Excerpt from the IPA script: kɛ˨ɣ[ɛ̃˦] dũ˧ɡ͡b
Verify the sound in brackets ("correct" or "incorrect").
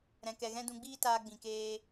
correct